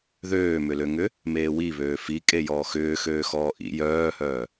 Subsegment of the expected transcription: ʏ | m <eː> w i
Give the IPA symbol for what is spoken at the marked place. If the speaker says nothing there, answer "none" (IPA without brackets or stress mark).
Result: eː